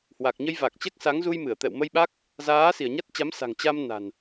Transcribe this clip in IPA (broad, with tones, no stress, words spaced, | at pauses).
hwa˨˩k̚ɲə˧jva˨˩k̚t͡ɕɛ˦˥k̚ sa˨˦ŋzu˧jmɨ˧˩ə̯t̪ɛ̰˧˨w mə˧jɓa˦˥k̚ | zaː˨˦si˧˩ə̯ɲa˦˥t̚t͡ɕa˨˦m sa̤˨˩ŋt͡ɕa˧m na̤˨˩n